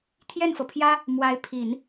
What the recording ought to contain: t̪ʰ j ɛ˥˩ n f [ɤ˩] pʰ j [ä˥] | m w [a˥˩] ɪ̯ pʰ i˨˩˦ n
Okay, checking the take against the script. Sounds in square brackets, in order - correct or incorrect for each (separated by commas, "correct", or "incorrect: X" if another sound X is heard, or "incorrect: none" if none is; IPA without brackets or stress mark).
correct, correct, incorrect: a˧˥